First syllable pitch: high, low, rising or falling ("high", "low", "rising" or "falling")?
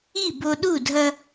falling